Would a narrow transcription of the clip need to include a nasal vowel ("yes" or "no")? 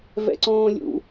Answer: yes